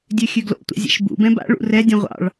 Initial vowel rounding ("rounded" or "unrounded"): rounded